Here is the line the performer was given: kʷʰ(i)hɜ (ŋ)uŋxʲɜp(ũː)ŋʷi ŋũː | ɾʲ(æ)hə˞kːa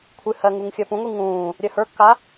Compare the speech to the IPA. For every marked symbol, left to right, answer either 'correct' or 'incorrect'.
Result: incorrect: ɨ, correct, incorrect: ũ, incorrect: ɜ

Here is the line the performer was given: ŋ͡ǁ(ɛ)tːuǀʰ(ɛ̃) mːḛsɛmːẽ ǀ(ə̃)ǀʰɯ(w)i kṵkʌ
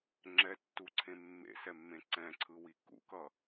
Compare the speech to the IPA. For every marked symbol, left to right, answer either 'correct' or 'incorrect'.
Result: correct, incorrect: ẽ, incorrect: ɛ̃, correct

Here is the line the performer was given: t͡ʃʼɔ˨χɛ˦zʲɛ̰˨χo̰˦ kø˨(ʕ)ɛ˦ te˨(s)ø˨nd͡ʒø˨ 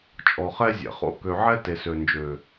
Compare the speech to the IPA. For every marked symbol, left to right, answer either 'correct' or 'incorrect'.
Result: correct, correct

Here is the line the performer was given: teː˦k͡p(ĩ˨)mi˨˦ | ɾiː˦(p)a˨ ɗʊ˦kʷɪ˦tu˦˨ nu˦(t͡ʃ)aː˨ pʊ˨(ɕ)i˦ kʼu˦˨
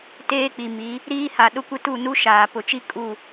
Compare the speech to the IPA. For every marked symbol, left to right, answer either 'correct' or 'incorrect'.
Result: incorrect: i˨, incorrect: h, incorrect: ʃ, incorrect: t͡ʃ

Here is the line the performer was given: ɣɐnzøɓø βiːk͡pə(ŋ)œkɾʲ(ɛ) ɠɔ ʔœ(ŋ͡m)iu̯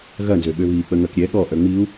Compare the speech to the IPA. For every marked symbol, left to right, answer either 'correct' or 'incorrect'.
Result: correct, correct, correct

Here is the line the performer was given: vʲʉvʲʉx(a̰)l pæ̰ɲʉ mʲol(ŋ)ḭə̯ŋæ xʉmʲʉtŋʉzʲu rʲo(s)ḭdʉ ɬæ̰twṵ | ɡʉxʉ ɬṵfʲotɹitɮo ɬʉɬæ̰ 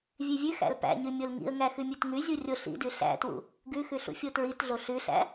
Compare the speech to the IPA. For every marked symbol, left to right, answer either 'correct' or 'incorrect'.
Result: incorrect: æ̰, correct, incorrect: ɬ

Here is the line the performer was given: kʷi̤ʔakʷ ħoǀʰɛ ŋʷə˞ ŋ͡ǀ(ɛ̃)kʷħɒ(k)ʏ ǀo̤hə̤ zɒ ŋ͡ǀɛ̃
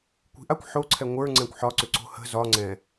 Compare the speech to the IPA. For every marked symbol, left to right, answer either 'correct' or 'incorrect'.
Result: correct, incorrect: ǀ

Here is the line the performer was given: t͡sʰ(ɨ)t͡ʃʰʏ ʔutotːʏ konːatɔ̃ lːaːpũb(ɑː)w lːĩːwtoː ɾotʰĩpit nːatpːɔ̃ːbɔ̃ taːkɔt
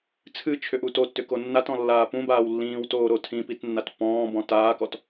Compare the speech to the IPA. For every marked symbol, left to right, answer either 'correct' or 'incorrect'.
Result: correct, incorrect: aː

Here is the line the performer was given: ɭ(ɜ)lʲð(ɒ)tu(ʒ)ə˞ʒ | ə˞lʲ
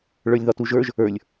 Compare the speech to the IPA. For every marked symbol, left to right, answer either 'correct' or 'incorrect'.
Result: incorrect: ə˞, correct, correct

